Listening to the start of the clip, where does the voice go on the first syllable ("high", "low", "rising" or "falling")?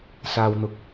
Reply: low